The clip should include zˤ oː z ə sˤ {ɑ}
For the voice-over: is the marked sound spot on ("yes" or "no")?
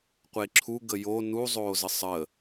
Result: no